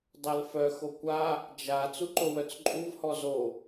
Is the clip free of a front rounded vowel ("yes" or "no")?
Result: no